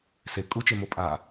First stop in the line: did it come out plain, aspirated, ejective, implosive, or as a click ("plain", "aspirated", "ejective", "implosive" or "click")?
ejective